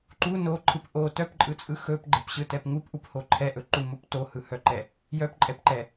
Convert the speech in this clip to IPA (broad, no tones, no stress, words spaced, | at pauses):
ǃu noǃʰɯp ʔo tœpǃʼɯt͡sʼɯ xɵpɡ͡ǃɛpɕɯtɛp ŋupʔupho ǃʰɛʔɵǃumop tohɯhœǃɛ | jœpǃʼɛpǃɛ